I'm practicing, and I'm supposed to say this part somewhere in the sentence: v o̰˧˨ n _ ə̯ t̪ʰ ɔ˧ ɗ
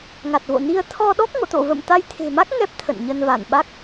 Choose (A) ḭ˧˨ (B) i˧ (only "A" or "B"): B